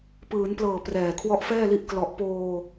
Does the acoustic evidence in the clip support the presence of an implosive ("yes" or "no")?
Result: no